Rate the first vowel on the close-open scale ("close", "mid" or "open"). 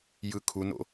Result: close